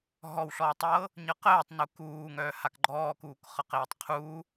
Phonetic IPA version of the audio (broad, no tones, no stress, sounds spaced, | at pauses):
ɦ ɔ w ɬ ɔː tˤ ɤː | ɲ ɤ q əː tˤ n u k uː ŋ œː h a k ɡ͡ǃ ɔː k uː k χ ɤ q eː tˤ qʰ uː